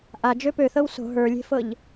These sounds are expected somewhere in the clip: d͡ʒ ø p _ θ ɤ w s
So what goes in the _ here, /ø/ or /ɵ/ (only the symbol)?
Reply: ø